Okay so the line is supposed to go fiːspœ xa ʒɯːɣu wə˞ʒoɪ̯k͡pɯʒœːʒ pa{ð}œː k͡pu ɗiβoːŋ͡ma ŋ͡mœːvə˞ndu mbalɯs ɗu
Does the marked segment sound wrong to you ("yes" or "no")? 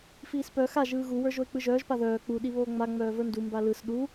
no